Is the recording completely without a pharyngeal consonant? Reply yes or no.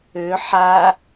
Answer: no